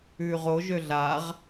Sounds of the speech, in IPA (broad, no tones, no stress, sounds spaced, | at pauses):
ʉː ʁ o ʒ ø ɮ a ʁ